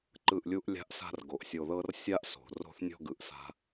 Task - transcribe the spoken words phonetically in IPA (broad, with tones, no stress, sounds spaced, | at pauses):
ǃ ɯ˦˨ ʔ lʲ u˦ ʔ lʲ a̤˦ ʔ s a̤˦ r ɡ o˨ ʔ sʲ o˧ ð ɤ˦ r sʲ a˦ ʔ s o̤˨ r o̤˦ θ nʲ ɔ̤˦ ɡ ɯ˨ ʔ s a̤˦